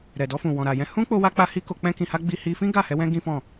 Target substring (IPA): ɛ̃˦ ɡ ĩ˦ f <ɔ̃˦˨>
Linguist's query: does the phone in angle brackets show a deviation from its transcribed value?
no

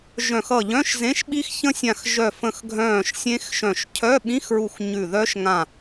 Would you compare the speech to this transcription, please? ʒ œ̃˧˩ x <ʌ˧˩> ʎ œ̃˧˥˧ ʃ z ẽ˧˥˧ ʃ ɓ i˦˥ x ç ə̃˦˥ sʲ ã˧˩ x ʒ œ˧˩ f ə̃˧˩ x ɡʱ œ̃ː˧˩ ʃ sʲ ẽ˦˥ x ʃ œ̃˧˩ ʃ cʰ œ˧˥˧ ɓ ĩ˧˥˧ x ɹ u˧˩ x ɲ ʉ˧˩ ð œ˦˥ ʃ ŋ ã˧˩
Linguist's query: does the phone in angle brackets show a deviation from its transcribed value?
no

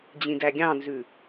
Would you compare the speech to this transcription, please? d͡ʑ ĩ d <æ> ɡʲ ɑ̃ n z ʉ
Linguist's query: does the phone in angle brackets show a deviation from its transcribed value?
no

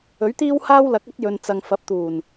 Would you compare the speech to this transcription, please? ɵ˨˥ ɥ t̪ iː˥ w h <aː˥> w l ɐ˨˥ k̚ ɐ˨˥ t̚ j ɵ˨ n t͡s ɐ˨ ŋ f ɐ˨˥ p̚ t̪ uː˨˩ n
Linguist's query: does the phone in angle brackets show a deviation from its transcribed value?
no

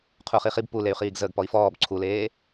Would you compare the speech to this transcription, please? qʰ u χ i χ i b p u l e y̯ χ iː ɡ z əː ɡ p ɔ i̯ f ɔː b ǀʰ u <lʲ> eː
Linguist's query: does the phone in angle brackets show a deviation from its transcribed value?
yes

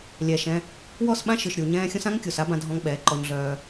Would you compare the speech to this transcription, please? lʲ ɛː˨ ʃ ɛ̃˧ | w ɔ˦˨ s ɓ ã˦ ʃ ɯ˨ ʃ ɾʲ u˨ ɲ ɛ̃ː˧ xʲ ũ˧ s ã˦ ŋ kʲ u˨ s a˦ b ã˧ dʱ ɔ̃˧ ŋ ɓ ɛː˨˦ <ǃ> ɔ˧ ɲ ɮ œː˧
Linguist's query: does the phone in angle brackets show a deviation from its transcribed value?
no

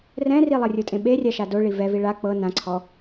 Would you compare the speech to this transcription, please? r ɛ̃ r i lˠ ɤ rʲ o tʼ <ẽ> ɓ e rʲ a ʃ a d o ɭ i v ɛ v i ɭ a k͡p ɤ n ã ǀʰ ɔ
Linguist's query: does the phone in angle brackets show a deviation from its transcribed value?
no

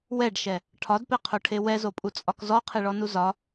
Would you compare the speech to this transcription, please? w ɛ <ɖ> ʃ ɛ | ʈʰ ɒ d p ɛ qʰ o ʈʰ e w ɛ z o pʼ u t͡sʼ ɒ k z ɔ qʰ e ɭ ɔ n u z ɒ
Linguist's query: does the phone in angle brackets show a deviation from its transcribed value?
no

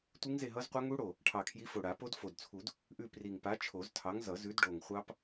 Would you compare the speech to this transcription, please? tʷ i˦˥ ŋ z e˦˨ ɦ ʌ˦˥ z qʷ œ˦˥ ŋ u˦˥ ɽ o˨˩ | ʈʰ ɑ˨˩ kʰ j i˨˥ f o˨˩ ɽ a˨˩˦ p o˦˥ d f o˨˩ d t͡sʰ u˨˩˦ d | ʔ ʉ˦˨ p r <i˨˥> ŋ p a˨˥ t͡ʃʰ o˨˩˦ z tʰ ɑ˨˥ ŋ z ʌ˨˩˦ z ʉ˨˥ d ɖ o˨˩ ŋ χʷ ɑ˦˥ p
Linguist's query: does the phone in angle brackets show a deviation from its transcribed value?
yes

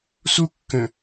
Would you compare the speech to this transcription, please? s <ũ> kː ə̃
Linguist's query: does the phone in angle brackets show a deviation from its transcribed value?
yes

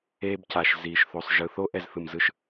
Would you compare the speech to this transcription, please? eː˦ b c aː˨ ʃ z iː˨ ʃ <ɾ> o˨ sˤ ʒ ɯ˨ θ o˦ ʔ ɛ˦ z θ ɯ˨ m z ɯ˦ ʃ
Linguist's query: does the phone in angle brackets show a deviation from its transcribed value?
yes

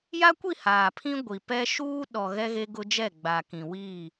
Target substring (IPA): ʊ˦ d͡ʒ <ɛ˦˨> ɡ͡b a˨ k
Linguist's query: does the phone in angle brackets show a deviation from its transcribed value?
no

